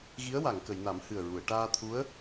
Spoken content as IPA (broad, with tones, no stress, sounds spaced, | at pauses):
ɣ i˧˥ ə̯ w a˨˩˨ ŋ k ə˨˩˨ j n a˨˩˦ m h ɨ˨˩ ə̯ ɹ u˨˩˨ ə̯ ʈ aː˧ t̪ʰ u˧˥ ə̯